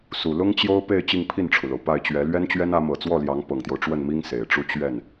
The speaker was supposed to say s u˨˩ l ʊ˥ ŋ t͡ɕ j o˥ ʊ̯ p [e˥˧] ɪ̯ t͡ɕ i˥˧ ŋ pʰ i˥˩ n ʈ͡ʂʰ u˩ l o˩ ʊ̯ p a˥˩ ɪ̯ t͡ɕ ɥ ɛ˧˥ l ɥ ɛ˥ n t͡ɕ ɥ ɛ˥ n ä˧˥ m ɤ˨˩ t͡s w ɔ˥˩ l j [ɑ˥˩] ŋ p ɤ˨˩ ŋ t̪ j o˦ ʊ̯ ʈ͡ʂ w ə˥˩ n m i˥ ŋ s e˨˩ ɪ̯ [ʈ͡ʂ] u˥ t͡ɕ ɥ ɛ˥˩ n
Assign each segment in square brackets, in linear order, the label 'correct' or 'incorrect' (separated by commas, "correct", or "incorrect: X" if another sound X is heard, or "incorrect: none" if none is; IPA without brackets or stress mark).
correct, incorrect: ɑ˧˥, correct